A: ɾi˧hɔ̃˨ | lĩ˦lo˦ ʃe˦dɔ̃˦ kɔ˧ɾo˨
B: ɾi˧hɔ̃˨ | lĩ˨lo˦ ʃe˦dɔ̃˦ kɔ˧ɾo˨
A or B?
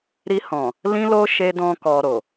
A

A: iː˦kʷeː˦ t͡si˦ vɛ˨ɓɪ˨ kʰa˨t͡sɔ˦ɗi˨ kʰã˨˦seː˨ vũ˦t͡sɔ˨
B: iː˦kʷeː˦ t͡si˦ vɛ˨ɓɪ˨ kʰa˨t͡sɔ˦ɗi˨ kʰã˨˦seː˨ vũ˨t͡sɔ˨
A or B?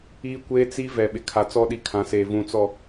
B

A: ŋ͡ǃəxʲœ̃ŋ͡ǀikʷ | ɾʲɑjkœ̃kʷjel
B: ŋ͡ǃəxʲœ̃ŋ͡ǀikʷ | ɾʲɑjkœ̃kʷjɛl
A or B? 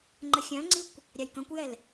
B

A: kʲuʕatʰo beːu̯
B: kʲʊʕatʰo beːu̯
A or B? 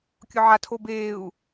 B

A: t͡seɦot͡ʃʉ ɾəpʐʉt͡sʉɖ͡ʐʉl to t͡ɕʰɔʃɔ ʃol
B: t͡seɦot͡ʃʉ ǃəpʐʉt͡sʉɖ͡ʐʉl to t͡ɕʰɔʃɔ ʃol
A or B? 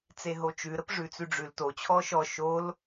A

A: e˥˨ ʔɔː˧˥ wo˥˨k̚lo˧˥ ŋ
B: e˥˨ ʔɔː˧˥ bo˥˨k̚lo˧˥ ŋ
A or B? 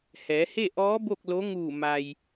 B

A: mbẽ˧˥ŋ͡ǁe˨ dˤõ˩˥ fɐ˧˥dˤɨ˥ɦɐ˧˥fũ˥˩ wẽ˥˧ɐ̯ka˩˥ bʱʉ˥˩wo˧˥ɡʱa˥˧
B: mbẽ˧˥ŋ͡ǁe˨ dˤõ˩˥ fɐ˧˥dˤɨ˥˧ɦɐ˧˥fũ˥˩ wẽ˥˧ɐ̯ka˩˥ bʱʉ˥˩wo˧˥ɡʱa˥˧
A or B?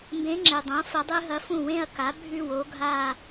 A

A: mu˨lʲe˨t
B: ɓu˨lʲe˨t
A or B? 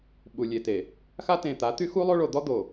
B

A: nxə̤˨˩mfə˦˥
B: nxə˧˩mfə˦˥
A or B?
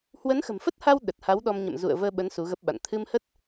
A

